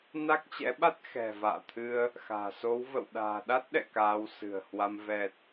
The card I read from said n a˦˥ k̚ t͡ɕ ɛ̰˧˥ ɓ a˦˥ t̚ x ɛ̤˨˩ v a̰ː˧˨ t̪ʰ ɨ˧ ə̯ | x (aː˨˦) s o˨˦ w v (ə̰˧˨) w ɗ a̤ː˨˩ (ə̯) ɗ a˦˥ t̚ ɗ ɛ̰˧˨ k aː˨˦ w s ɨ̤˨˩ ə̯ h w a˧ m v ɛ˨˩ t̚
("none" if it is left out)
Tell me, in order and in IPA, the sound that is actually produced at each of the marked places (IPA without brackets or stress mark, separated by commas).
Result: a̤ː˨˩, ə̰˧˨, none